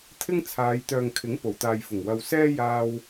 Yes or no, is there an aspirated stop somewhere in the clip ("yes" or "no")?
yes